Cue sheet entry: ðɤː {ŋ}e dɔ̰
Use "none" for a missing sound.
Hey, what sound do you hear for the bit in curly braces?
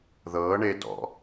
ɳ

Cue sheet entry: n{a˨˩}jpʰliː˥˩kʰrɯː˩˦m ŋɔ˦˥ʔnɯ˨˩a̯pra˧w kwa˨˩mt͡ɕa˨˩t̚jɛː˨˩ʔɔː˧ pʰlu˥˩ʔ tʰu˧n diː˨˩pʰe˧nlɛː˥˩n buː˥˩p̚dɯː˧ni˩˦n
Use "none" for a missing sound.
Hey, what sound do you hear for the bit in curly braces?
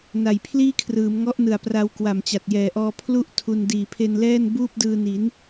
a˨˩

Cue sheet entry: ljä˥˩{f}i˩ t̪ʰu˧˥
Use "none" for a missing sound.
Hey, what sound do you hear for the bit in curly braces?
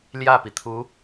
p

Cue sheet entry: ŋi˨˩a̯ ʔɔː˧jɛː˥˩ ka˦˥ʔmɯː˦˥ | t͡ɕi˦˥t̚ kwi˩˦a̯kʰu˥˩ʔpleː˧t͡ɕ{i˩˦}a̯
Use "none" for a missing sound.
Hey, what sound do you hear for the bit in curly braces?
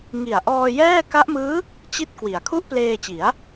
i˩˦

